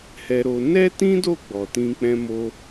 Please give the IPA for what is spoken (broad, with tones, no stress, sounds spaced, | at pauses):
h ɛ˧ ɾ o˧ n ɛ˦ t ĩ˦ d o˦˨ ɡ͡b ɔ˨ t ĩ˧ k͡p ɛ̃˧ m o˧